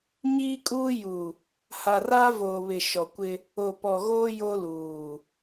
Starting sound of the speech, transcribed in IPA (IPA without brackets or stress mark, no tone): ɲ